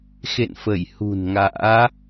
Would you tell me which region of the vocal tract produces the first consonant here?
velum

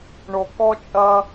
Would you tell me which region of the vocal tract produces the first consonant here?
retroflex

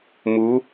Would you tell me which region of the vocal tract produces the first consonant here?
lips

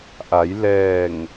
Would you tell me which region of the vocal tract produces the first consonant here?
throat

